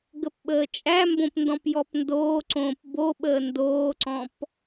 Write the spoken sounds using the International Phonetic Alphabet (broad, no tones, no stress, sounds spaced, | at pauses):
ɡ ə p ɓ əː t͡ʃʼ æ m b õ p n d ɔ̃ p j ɔ p n d oː ǀ õː p b o ɓ əː n d oː ǀ ɔ̃ p